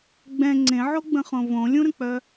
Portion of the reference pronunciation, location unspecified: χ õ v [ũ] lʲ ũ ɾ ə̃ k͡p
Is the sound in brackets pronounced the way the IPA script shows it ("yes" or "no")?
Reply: no